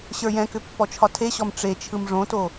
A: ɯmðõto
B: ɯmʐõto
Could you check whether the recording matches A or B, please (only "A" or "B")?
B